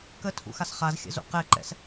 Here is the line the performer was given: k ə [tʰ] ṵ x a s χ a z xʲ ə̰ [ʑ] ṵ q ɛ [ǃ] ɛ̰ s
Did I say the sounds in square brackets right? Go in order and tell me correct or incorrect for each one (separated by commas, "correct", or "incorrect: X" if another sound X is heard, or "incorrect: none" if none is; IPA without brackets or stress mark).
correct, incorrect: z, correct